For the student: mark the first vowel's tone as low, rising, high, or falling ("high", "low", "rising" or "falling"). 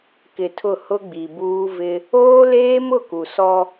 low